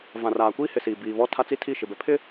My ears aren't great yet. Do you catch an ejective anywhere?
no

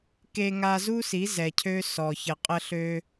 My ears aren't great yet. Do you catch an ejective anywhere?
yes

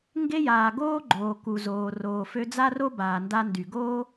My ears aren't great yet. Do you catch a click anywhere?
yes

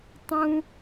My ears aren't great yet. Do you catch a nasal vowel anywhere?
yes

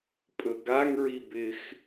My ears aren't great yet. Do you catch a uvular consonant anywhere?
no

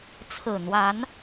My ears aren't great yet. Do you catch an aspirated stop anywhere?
yes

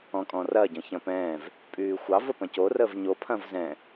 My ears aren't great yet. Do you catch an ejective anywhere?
yes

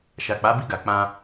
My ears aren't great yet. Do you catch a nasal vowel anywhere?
yes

